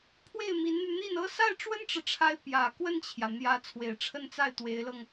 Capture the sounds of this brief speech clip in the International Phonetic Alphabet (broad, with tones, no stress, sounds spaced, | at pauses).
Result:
pʰ w e˥˩ ɪ̯ m i˧˥ n n̪ y˧ n̪ i˥˩ n ɤ˥ s a˥˩ ɪ̯ ʈ͡ʂ w ə˥ n ʈ͡ʂ ɻ̩˨ ʈ͡ʂʰ a˧˥ ɪ̯ p j ä˨˩ k w ə˥˩ n t͡ɕʰ j ä˩ n̪ j ä˧˥ t͡sʰ w e˨˩ ɪ̯ ʈ͡ʂʰ ə˥˧ n t͡s a˥˩ ɪ̯ t̪ w e˧˥ ɪ̯ l ɤ˧ ŋ